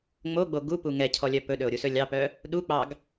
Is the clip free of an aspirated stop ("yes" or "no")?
no